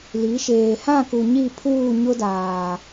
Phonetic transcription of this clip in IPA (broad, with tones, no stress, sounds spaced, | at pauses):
l i˨˦ ʃ eː˨ h ã˦˨ k u˨ ɲ i˦˨ pʰ uː˦˨ ɲ ʊ˦ d aː˨